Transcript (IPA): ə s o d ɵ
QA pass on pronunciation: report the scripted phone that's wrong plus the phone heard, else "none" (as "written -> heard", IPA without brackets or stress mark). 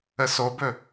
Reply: d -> b